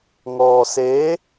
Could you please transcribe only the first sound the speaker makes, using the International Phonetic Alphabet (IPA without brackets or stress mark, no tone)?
ŋ